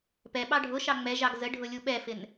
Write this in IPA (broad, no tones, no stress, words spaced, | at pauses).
pɛ ɓɑɖʱʊʃɑ ŋ͡mɛʒɑɡ zəɖʱʊ lʲuɓɛfɪn